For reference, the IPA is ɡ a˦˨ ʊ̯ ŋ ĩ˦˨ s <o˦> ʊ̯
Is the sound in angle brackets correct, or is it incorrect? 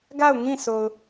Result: incorrect